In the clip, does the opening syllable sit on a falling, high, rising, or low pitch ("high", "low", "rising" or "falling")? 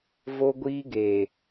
high